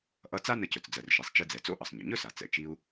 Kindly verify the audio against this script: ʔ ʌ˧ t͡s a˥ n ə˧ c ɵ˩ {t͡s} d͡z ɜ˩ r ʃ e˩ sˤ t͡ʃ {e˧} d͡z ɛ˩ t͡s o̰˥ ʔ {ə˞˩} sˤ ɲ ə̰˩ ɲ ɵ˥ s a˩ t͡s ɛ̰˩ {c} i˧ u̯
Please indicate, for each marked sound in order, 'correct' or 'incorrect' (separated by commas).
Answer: correct, incorrect, incorrect, incorrect